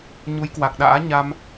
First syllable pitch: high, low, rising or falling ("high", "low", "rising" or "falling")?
rising